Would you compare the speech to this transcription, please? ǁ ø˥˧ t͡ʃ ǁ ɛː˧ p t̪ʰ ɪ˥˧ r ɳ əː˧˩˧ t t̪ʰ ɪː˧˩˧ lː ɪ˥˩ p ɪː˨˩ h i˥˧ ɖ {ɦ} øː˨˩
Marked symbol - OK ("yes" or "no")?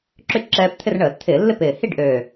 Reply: no